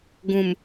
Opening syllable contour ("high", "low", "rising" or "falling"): low